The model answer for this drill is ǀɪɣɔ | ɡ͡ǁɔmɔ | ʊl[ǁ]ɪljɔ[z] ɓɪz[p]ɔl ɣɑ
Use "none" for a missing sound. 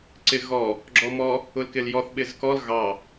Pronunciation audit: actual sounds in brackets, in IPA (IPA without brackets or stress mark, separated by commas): k, θ, k